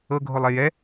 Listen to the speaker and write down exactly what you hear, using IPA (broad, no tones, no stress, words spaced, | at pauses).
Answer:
ɤɡʱolˠe jɛ